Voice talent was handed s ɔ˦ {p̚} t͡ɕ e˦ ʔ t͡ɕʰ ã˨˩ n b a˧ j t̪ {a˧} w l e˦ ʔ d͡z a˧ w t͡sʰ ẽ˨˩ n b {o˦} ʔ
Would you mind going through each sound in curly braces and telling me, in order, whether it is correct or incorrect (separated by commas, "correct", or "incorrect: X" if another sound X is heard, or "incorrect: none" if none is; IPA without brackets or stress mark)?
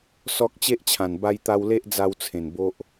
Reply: incorrect: k̚, correct, correct